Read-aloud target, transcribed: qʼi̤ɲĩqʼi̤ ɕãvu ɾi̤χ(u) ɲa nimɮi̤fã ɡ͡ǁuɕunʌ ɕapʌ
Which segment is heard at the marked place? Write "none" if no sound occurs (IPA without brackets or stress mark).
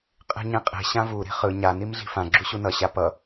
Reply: ɯ